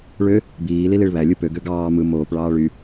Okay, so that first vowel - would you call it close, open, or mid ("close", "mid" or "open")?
mid